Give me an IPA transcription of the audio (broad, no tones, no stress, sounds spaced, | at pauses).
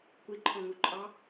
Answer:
kʷ i ǃʰ ɔ̃ ŋ u ǃʼ ɑ